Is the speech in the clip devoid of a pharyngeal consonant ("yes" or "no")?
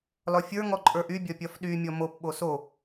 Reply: yes